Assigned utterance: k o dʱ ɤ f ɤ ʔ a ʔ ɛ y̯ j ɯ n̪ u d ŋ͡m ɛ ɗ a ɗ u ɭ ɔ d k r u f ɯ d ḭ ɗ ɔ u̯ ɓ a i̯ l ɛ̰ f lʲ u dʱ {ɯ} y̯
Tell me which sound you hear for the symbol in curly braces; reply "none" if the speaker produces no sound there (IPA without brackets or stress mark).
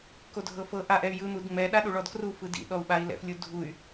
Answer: u